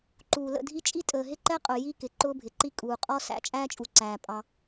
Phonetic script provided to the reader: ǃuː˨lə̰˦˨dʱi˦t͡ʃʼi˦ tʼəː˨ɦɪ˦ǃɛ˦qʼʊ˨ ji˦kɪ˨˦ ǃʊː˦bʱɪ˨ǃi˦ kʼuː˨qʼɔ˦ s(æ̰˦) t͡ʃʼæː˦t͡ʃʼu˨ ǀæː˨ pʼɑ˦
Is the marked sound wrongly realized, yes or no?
no